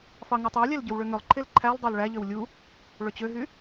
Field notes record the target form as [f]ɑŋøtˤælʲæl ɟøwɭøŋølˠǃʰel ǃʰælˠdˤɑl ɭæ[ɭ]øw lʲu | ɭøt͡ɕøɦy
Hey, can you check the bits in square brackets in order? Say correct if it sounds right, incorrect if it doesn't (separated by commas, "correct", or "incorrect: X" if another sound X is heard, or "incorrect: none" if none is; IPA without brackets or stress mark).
correct, incorrect: ʎ